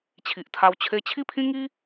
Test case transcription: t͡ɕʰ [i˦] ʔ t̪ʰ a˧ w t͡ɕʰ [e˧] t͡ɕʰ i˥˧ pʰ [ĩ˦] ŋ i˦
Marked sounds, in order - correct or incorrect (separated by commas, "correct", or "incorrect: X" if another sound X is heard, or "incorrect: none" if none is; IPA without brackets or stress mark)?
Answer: incorrect: i˨, correct, correct